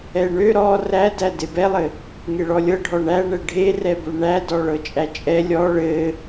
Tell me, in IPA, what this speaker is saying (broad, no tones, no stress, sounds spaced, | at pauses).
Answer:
ɛ ɳ ø ɾ ɔ r æ d æ d e b ɛ lˠ ɘ | ŋ e ɭ ɔ lʲ ɤ ɖʱ ɔ ɳ æ ɳ ɛ ɖʱ e r ɛ b ø ɳ æ d ɔ ɭ ɤ t͡ʃʼ æ t͡ʃʼ ɛ lʲ ɔ ɭ ɘ